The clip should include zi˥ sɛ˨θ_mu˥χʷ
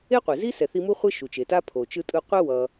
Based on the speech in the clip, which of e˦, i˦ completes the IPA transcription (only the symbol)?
i˦